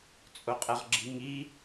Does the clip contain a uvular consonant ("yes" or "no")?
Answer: yes